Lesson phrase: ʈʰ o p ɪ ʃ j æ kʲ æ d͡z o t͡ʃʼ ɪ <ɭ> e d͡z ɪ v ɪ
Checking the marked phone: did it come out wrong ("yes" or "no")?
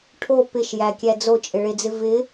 no